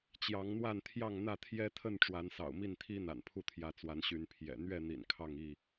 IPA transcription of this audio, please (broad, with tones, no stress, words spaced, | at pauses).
t͡ɕjɑ˨˦ŋn̪wa˥˨n t̪ʰjɑ˥˨ŋn̪ä˥˨t̪ʰjɛ˦t̪ʰə˥˨n ʈ͡ʂwa˨˦nsɑ̰˨˩ʊ̯mi˥˨nt̪ʰi˦ n̪a̰˨˩npʰu˥˨t̪ʰjä˨˦t͡swa˨˦n ɕy˨˦npʰjɛ̰˨˩ n̪ɥɛ˥˨n̪ḭ˨˩n kʰɑ˥˨ŋi˥˨